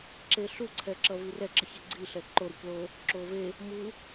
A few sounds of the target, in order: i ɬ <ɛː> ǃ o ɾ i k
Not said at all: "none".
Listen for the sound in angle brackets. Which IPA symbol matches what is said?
ɛ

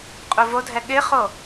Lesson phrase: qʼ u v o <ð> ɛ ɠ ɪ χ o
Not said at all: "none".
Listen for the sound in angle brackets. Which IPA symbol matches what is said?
dʱ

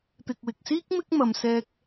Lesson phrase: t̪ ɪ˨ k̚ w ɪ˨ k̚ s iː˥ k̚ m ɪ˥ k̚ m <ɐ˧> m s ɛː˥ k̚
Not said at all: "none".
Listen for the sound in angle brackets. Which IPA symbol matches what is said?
ɐ˧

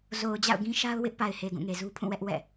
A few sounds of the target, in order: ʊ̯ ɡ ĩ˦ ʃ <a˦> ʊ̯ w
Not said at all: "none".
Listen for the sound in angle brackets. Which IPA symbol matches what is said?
a˦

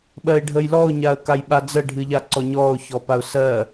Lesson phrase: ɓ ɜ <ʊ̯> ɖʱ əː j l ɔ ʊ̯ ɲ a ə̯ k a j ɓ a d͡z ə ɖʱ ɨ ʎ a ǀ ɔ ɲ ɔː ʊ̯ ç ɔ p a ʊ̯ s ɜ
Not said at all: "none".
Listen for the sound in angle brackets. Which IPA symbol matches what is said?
ɪ̯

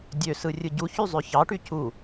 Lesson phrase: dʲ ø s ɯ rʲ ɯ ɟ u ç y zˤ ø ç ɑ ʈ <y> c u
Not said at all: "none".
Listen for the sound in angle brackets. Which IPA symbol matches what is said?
y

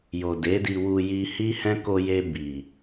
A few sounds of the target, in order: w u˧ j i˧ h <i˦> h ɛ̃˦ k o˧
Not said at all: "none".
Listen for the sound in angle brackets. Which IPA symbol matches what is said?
i˦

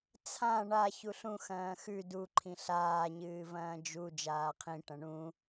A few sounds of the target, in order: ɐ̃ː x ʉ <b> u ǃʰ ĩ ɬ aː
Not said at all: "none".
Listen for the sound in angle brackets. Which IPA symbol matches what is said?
d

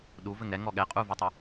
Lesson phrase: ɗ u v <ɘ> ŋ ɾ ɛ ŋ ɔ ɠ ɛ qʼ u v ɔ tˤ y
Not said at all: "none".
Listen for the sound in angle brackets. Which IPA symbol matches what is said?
ɘ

